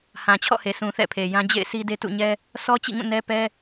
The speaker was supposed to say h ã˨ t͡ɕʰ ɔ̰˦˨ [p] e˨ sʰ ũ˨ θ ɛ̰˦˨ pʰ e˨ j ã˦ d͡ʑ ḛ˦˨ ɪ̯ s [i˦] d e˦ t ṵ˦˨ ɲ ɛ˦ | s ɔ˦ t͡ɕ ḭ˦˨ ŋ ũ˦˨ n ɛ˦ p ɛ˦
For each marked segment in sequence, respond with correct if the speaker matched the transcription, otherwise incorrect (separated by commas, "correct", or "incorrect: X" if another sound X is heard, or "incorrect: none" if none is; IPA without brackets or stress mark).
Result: incorrect: h, correct